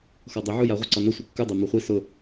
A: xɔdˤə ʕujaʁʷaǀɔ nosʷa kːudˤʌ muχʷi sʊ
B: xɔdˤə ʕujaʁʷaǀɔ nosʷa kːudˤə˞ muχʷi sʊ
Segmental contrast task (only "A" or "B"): B